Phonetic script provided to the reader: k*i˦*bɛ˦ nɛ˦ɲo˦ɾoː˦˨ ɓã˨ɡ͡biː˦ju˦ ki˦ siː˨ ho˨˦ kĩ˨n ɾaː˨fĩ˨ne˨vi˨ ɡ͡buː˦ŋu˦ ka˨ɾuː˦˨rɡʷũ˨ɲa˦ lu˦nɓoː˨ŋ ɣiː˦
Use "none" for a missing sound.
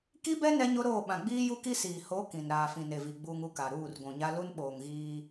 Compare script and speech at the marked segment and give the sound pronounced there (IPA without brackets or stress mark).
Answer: i˦